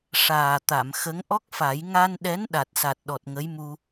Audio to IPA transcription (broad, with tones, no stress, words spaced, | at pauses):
ʂaː˨˩t̪a˨˩˨mxə˧˥ŋ ʔɔ˦˥k̚fa˨˩˦j ŋa˧nɗɛ˧˥n ɗa˨˩t̚sa˨˩t̚ ɗɔ˨˩t̚ŋə˧˥jmu˧